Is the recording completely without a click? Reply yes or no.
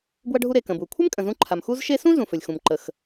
no